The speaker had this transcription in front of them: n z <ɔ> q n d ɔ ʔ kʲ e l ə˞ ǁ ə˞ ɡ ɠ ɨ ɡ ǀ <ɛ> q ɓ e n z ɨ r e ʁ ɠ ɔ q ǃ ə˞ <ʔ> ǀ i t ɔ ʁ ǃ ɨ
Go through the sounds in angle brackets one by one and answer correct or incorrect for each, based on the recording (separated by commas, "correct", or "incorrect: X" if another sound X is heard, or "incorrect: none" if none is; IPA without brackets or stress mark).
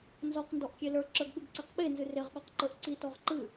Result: correct, incorrect: e, correct